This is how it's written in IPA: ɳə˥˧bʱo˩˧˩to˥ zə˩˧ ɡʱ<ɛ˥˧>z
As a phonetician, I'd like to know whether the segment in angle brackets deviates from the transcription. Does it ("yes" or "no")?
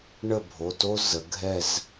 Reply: no